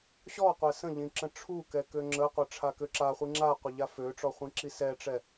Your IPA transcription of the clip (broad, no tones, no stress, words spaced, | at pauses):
ɕɔqʷɛ sə̃ʎĩ ǁə̃ʈ͡ʂʰukɛ køŋ͡ǁəqʷə ʈ͡ʂʰakøǁaχʷi ŋ͡ǁaqʷə ʎaføʈ͡ʂɔ χʷĩǁisɛʈ͡ʂɛ